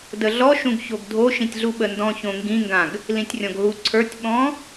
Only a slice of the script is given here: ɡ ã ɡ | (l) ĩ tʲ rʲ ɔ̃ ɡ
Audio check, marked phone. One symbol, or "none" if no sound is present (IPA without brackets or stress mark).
l